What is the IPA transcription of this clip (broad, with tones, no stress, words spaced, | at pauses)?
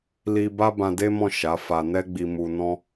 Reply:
li˦ ba˦bã˧de˦mɔ̃˦˨ ʃa˨˦fa˧ nɛ˦ɡ͡bi˧ mu˧ nɔ̃˦